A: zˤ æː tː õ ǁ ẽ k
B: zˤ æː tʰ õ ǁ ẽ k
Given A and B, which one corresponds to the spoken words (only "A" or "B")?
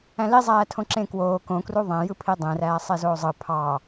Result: B